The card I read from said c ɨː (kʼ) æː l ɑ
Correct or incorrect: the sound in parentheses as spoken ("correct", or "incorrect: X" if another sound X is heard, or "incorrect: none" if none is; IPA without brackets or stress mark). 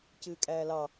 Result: correct